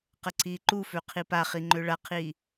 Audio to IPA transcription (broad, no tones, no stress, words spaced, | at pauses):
qəǀiːǃufø qʰipaχi ŋ͡ǃøɭaqʰiː